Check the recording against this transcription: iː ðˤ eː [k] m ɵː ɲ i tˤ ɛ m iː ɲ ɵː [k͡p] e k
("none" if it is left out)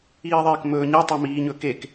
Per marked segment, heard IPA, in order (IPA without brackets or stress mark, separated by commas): k, k